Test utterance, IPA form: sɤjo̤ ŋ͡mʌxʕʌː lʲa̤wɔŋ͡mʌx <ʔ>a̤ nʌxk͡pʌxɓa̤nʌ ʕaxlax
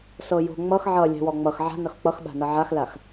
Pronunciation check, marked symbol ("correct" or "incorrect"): incorrect